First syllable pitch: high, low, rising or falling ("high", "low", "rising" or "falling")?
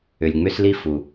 low